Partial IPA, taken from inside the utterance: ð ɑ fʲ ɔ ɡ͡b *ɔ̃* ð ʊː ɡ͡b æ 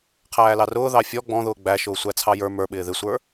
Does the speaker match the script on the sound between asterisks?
yes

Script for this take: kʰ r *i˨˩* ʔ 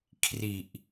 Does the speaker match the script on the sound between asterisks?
yes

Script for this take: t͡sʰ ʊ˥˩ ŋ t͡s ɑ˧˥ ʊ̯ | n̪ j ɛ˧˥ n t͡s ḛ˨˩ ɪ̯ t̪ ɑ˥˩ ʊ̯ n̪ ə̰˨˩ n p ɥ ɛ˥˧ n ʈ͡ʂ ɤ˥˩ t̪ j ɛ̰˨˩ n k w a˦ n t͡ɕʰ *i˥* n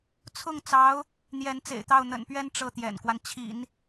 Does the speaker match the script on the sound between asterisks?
no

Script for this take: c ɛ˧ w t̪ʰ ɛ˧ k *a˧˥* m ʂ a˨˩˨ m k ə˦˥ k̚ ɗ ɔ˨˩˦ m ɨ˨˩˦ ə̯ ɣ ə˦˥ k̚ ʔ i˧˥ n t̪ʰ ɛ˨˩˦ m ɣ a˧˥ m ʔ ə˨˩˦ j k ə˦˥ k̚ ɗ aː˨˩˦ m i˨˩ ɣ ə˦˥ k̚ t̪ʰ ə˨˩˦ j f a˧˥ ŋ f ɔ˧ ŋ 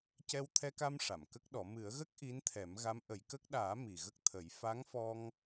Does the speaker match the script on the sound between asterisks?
no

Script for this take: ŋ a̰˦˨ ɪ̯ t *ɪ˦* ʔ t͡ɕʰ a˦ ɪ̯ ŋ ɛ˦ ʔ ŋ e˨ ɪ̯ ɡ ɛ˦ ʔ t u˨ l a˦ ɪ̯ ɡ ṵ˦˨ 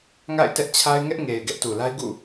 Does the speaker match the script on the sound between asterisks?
no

